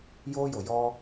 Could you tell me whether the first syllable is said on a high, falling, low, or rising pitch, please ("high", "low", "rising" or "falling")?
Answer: high